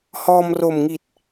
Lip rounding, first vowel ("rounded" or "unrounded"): rounded